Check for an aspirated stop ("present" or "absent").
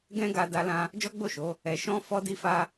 absent